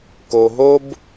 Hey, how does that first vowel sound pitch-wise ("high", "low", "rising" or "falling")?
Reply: low